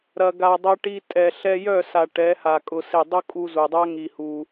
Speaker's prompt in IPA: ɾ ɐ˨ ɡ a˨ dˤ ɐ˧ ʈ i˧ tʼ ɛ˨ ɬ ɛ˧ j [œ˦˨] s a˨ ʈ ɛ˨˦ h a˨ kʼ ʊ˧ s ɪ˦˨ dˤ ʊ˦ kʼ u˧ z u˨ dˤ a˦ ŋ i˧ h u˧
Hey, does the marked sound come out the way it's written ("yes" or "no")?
yes